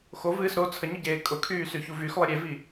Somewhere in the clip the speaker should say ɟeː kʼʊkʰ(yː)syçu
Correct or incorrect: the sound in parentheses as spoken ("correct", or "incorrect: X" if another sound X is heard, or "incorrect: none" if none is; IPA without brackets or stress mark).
correct